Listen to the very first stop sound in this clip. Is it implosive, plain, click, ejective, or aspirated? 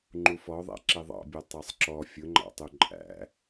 click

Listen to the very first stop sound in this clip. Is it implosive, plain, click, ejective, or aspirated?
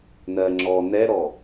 click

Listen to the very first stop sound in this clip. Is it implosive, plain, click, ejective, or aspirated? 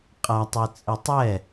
ejective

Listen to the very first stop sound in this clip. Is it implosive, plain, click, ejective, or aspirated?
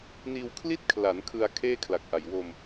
aspirated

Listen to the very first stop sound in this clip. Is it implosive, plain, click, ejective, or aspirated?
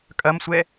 ejective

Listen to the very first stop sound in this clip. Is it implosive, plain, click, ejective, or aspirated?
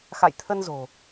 aspirated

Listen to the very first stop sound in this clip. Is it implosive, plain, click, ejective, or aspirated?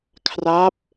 aspirated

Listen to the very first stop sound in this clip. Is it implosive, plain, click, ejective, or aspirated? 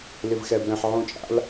plain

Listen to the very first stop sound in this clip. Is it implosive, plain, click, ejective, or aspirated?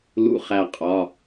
ejective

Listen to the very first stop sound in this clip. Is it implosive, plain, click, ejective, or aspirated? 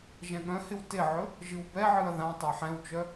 implosive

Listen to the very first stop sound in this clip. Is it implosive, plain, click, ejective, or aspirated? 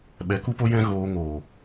implosive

